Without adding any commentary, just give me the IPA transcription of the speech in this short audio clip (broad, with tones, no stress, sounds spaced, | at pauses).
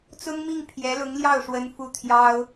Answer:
t͡s ʊ˥ ŋ m i˥˩ ŋ pʰ j ɛ˧˥ l ʊ˧˥ ŋ l j ɑ˥˩ ʊ̯ ʂ w ə˥ n f u˥˩ t̪ʰ j ɑ˥ ʊ̯